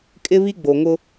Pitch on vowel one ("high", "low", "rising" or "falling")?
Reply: high